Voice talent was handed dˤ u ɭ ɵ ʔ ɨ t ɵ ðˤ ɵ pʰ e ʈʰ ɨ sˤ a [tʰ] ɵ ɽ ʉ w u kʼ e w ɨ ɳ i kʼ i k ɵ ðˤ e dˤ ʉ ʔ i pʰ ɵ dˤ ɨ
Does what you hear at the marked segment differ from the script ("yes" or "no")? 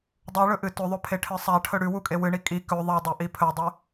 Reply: yes